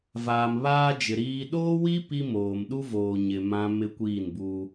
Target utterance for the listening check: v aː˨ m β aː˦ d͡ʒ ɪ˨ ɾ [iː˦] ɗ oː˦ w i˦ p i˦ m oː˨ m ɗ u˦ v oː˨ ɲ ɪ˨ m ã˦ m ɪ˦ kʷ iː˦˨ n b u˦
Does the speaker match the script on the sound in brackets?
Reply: yes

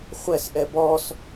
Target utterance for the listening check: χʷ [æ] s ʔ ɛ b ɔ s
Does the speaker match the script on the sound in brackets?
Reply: no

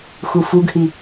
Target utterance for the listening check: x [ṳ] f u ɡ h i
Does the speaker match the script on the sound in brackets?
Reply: no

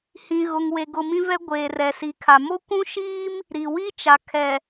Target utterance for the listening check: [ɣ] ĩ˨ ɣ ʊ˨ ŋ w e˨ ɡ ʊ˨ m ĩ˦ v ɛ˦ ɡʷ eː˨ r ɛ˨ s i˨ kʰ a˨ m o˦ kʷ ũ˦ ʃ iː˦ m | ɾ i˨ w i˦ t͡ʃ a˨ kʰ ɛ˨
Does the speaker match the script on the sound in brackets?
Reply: no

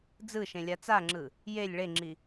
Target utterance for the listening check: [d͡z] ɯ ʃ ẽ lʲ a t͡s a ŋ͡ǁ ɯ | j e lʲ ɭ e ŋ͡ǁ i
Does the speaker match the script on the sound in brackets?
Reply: yes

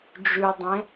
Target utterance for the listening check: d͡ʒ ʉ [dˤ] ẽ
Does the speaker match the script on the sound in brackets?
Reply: yes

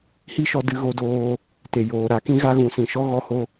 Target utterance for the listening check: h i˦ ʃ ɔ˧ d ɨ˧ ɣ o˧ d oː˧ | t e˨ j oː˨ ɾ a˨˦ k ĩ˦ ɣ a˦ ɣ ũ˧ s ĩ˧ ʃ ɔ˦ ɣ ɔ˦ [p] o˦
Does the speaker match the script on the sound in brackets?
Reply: no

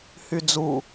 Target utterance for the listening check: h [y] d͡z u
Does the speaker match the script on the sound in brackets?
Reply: yes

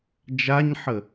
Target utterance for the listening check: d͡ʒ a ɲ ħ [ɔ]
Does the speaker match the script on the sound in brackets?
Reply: no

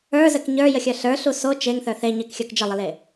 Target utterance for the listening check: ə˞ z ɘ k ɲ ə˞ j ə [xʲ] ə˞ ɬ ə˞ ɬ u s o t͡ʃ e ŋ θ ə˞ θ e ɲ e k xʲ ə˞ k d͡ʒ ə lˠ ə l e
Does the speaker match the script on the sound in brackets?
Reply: yes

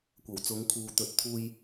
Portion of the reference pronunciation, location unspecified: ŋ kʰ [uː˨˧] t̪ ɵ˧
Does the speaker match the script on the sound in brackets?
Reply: no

